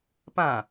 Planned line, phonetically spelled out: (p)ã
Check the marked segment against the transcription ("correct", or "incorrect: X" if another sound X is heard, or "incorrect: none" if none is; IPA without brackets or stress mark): correct